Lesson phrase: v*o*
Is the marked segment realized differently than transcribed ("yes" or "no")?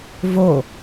no